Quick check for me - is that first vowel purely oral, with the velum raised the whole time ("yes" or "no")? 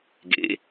yes